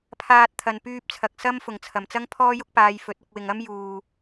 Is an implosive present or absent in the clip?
absent